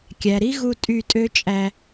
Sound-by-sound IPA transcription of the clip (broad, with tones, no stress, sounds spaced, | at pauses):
kʲ æ˨ ɾ i˦ ɣ u˧ tʼ y˦˨ tʼ ø˦ t͡ʃʼ æ˧